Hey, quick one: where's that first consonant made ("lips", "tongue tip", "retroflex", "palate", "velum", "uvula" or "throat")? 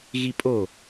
velum